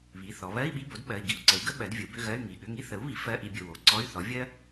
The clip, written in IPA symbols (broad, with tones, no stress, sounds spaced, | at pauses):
β i˩˧˩ θ ɔ˩˧ β ɜ˧˥˧ i̯ ɓ i˧˥˧ b o˩˥ d ɓ ɜ˩˧˩ i̯ ɡ i˥ u̯ ǀ ə˩˥ u̯ ɡ ə˥ ɓ ɜ˩˥ d vʲ ə˩˥ u̯ b ʏ˧˥˧ ɣ ɜ˧˥˧ y̯ ŋ i˩˧˩ ɠ ʏ˧˥˧ ŋ i˥ θ ə˩˥ u̯ β i˩˥ f ɜ˧˥˧ ʔ i˧ bʲ ə˩˧˩ w o˩˧˩ ǀ ɔ˧˥˧ y̯ θ ɔ˩˥ vʲ ɜ˥